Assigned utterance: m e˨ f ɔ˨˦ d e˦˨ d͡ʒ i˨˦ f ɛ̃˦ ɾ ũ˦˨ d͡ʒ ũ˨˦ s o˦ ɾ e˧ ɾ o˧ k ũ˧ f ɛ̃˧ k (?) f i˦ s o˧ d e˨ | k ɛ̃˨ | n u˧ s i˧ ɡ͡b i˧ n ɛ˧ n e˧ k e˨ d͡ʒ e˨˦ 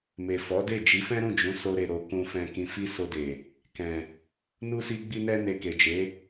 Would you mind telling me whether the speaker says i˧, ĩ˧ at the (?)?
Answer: ĩ˧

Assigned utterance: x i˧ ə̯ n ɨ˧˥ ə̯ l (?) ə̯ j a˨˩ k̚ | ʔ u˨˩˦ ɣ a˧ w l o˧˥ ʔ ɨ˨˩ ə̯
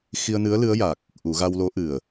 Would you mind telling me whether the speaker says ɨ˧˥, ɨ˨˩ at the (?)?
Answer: ɨ˧˥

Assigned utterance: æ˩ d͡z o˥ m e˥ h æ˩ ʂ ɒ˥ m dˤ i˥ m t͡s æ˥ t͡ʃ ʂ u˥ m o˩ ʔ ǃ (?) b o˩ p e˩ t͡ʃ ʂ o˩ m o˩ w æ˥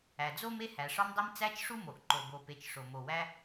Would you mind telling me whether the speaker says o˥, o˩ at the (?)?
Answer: o˩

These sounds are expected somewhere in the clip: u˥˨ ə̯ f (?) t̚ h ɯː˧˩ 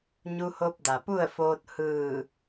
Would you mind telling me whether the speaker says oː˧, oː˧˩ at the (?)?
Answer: oː˧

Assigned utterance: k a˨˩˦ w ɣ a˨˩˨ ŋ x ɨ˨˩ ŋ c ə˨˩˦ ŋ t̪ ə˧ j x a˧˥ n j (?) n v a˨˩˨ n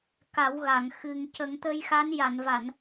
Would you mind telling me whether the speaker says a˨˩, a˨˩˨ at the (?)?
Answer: a˨˩˨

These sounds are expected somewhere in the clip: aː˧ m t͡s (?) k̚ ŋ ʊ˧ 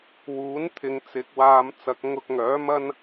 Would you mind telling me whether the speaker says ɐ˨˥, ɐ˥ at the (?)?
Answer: ɐ˨˥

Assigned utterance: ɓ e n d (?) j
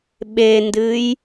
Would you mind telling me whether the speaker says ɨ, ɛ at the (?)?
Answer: ɨ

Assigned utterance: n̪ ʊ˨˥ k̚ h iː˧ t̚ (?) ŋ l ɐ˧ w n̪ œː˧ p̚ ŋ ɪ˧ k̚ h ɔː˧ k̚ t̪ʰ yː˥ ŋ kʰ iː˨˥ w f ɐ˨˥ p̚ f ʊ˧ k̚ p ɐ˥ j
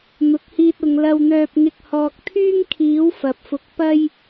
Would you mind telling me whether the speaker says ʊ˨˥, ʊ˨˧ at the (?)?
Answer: ʊ˨˧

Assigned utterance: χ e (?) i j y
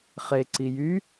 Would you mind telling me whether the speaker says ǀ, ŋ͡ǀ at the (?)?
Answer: ǀ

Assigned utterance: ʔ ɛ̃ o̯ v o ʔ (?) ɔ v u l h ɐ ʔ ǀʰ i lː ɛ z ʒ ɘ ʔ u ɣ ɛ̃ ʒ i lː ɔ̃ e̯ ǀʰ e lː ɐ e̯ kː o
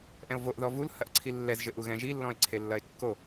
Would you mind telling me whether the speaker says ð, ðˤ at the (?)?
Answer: ð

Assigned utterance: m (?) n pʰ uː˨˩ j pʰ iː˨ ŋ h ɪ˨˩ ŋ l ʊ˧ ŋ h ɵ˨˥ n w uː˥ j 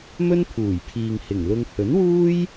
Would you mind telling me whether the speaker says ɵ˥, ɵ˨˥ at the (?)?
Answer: ɵ˥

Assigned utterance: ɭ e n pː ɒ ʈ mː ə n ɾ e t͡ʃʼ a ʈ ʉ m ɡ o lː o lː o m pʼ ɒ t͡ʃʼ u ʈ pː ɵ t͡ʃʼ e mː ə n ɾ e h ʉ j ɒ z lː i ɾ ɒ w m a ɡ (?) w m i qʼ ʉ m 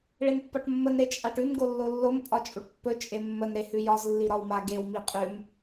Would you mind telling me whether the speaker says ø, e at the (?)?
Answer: e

